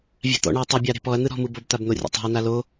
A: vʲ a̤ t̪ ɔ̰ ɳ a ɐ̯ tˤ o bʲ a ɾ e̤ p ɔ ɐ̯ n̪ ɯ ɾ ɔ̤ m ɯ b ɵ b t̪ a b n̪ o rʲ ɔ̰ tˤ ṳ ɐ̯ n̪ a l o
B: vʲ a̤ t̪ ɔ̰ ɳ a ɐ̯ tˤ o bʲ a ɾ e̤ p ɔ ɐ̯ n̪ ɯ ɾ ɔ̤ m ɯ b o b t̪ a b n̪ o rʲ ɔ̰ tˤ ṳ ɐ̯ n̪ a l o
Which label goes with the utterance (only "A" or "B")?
B